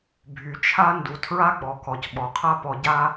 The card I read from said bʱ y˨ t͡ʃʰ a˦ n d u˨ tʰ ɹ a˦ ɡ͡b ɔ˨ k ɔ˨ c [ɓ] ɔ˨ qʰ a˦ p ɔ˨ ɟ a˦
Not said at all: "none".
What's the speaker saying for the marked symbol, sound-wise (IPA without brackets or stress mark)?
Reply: ɓ